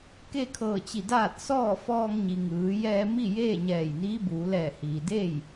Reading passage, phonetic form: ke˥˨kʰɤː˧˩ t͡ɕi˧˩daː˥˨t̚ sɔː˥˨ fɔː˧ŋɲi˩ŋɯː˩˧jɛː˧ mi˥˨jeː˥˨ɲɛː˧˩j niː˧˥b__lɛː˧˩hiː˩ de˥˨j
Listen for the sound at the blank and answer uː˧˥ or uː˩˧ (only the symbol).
uː˩˧